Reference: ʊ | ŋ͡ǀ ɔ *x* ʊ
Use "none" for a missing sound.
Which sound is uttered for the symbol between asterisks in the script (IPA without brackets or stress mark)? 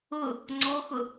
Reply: x